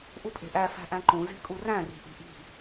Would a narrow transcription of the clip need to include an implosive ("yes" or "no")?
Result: no